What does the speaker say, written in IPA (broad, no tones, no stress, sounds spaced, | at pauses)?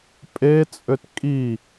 pʼ e t͡sʼ ø t kʼ i